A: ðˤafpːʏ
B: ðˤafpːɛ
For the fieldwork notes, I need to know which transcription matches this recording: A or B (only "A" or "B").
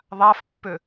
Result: A